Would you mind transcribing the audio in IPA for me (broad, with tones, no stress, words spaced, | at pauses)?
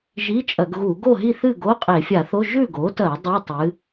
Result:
ʒi˧˥˧t͡ʃʼɐ˧˩˧ɡɣu˧˩˧ ɡo˥˨ɦi˥˨θɨ˥˨ ɡo˧˥˧qʼe˧˩˧fʲa˧˩˧θo˧˥˧ ʒʉ˥˨ɡo˩˥tɐ˧˩˧ dˤi˧˥˧tˤɨ˩˥